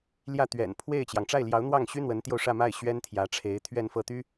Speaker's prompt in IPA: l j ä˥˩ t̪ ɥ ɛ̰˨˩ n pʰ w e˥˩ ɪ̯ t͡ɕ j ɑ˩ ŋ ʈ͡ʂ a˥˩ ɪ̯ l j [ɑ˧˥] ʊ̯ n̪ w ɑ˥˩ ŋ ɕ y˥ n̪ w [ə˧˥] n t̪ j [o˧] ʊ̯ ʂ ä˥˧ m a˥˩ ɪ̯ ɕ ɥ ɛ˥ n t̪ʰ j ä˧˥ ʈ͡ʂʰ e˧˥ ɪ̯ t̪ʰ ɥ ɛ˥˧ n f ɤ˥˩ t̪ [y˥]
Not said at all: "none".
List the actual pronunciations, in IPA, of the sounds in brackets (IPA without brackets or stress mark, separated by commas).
ɑ˧˥, ə˧˥, o˧, y˥